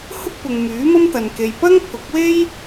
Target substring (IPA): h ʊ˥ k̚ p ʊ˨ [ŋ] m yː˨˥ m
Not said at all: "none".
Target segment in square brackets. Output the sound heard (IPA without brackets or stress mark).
ŋ